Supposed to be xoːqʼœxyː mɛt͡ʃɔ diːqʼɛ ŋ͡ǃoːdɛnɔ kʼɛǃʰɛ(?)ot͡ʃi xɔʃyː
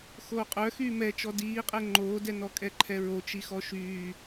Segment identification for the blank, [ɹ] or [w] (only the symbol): ɹ